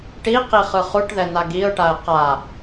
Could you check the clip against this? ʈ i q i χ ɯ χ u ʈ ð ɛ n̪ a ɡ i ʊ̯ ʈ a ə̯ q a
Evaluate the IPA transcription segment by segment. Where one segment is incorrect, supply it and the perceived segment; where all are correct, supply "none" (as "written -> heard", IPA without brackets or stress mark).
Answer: none